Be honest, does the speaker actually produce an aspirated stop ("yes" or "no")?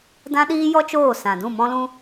no